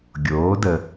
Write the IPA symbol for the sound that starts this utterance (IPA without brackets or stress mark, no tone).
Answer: ɡʲ